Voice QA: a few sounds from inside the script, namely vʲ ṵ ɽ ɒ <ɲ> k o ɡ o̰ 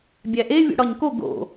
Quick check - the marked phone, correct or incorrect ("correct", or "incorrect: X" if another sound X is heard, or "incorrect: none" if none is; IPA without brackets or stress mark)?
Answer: correct